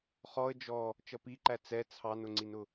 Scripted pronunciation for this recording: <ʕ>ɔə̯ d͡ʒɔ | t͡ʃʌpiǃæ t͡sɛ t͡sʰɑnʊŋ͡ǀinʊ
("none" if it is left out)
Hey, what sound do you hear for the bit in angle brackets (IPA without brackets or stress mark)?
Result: χ